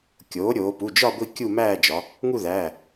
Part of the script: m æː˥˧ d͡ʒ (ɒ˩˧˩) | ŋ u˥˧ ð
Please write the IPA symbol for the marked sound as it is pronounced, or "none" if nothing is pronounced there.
ɒ˩˧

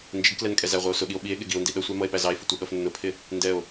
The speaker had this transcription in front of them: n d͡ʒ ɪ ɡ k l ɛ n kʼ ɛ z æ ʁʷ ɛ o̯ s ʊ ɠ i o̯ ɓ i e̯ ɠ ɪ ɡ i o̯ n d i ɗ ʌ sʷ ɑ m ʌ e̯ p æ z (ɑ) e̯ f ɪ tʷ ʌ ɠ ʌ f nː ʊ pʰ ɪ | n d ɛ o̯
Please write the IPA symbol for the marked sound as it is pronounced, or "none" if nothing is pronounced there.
ɑ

